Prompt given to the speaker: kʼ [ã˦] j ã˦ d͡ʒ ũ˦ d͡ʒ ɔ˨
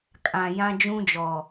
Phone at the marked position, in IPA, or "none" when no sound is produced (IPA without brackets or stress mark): ã˨